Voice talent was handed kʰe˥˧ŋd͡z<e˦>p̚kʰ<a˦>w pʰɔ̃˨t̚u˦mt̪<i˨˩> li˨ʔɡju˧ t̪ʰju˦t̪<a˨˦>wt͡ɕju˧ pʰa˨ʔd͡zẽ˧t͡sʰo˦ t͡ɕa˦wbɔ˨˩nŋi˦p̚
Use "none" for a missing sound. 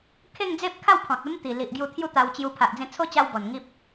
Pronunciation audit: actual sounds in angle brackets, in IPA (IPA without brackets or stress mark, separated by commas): e˦, a˥˧, i˨˩, a˧